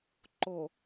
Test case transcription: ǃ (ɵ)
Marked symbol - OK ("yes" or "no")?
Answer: no